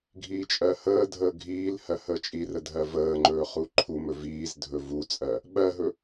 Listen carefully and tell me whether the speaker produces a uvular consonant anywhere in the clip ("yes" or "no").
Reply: yes